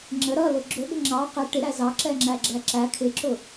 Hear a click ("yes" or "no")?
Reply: yes